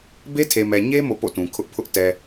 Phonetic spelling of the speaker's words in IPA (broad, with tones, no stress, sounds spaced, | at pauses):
b e˦ tʰ e˨ m ɛ˨ ɲ e˦ m o̰˦˨ p o̰˦˨ t ũ˨ kʰ ʊ˦ ʔ pʰ ʊ˦ ʔ t ɛ˨